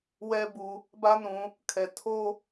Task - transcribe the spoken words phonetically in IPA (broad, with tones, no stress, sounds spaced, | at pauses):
w ɛ˦ b u˨ | b ä˦ n ũ˨ | kʰ ɛ˨ tʰ o˦